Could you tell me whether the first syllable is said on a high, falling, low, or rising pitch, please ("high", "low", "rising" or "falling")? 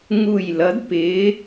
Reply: falling